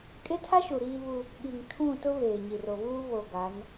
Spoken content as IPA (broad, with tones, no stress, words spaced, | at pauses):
kʼe˦tʰa˦ʃu˨ ɾiː˦βu˦ | ɓi˨ŋtʰũ˦˨tʊ˦ βeː˨ɲi˨ro˨βuː˦ βo˨ ɡa˨˦n